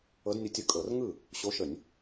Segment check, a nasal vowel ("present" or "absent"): absent